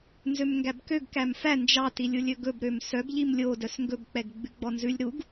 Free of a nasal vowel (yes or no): yes